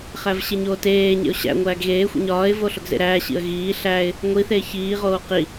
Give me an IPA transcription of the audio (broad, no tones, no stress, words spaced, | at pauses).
χævɕeɲoːteː ɲḛʊ̯ɕæ̰ ŋʷæːɡɣeːxʷḭ ɲɒːɪ̯vo ɬoɡzḛɾæːɕḭə̯ ɣiː ɬæːɪ̯ | ŋʷiθeː çiːʁoː qi